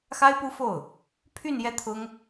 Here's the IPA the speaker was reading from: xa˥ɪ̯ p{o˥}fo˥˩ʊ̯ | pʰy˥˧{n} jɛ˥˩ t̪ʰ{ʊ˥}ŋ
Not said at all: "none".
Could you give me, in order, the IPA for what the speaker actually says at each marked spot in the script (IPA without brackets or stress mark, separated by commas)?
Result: u˥, n, ʊ˥